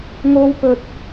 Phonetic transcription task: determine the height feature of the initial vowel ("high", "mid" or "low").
mid